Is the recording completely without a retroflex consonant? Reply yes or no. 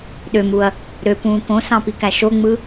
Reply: yes